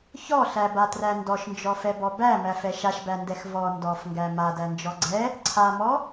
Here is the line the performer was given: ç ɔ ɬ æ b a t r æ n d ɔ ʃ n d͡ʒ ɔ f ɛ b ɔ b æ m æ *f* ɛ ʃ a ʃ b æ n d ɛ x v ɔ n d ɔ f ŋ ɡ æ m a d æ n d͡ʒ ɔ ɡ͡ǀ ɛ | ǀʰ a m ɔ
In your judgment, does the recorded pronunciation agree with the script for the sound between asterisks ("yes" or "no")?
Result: yes